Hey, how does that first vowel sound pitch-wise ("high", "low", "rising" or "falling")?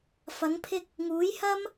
rising